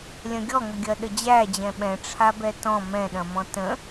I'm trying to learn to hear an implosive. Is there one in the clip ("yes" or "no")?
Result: yes